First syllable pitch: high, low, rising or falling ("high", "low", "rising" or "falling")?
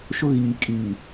high